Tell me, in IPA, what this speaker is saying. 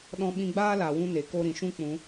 ɗɔ̃˦ɓĩ˦ ɡ͡baː˦la˨wũ˧ ne˨ko˧ ɾĩ˨ʃũ˧ k͡pũ˨˦

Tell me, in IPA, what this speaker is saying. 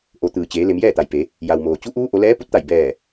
ʔo˩˧t̪ɯː˩t͡ɕeː˩˧ le˩˧mjɛː˥˨t̪a˩jpe˩˧ | ja˩wmoː˩ t͡ɕu˧˥ ʔuː˧˥ʔo˩˧lɛː˧˥ pu˧˥t̚t̪a˧˩j bɛː˧˩

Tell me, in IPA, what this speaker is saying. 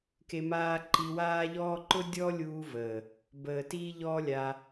ke˧ maː˦ ǃi˧waː˦ʎɔː˦ ǃʊ˦dʲɔ˦lʲuː˧ vəː˨ | bəː˨ tiː˦ʎɔː˦lʲaː˧

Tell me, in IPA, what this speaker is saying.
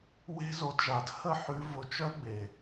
we̤˦zo˧d ʒa˨dhə˦˨ħʉ˧ vʊ˧t͡ʃœ˦ɡ͡be˨

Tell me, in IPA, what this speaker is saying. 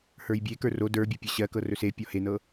hə˞jbʲekə˞ ro də˞bʲə˞ pʲɤɕɜkɤ rɵsepʲɔ henɤ

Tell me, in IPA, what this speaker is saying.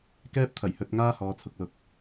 kɛː˥p̚t̪ʰɐ˨˩j hɵ˨˥t̚ ŋaː˥ hɔː˨˧t͡sʰʊ˨k̚lʊ˨k̚

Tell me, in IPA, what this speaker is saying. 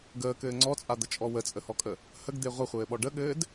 ɡəːkɘː ŋ͡ǀɔt͡sʼad̪ət͡ʃʼɔ wət͡sʼəhɔkʼə | həɡd̪e ʁʷəχʷɘːɓɔ ɖəɠɘːd

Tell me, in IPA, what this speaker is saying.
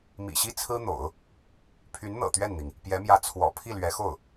mḭ˨˩ɕi˥˩ t͡sʰɹ̩˥n̪o̰˨˩˦ʊ̯ | pʰy˧˥nn̪ɤ̰˨˩ t̪ɥɛ˥˩nn̪i˩ŋ | pjɛ˧˥mjä˧˥ t͡sʰwɔ̰˨˩ pʰi˥˩lɥɛ˧˥xo˥˩ʊ̯

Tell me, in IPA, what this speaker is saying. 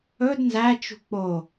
ɵd nzæ t͡ʃṳk͡po

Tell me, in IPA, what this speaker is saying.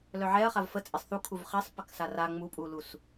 lœʕɛɐ̯χav fət͡sʼesˤ θu kʰuvχɛsˤ pəksara ŋ͡mupʼulus

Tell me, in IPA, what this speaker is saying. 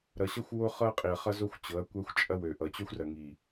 ɾʌ˨ɕʌ˦xʷ wo˦ χɤ˦qʼi˨ɐ̯χʌ˦ zo˦xʷt͡ɕɤ˨˦ɐ̯kʷɐ˦xʷ t͡ʃʼɐ˦wø˨ʔʌ˨ t͡ɕø˦xʷrɐ˨ ŋi˨

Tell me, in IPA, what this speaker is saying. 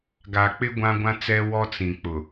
ɡa˨k͡pɪ˦ ɡʷã˦ɡʷã˦t͡sɛ˦ wɔ˦t͡sĩ˨ k͡pʊ˨

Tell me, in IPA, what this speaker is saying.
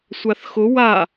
sʷaθxʊ wa

